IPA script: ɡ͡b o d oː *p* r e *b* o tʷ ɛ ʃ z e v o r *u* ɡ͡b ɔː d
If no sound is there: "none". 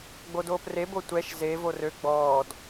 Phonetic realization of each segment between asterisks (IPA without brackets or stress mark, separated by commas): p, b, ø